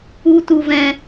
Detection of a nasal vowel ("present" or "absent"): present